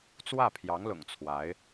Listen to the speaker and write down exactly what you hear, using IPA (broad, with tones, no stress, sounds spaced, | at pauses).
t͡s w ä˥˩ pʰ j ɑ˧˥ ŋ l ʊ̰˨˩ ŋ t͡sʰ w a˧˥ ɪ̯